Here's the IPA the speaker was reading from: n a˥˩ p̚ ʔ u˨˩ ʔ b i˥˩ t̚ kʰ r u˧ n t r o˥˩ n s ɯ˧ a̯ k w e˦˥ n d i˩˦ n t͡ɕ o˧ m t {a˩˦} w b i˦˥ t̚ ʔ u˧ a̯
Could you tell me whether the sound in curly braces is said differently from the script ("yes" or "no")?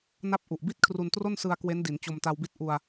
yes